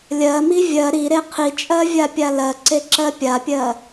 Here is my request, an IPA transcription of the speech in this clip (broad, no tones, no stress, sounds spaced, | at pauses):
lʲ ɜ m i vʲ ɜ ɾ i ɾ e qʰ i t͡ʃʼ ɜ vʲ a pʲ a l ɜ ǀ e ǁ ɜ pʲ a pʲ ɜ